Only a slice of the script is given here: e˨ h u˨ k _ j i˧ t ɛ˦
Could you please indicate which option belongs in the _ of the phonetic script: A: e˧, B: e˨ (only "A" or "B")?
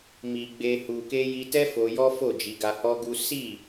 A